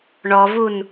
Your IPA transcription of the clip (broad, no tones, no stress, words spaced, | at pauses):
ɳɔvun